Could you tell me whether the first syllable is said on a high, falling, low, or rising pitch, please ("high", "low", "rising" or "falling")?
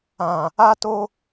low